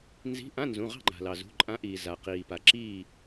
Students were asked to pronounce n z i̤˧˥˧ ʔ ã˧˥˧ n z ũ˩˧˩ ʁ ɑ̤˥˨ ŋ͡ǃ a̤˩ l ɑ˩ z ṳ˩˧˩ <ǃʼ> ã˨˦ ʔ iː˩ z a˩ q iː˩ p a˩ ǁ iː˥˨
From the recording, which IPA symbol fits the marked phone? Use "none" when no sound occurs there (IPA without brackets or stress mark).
ǃʼ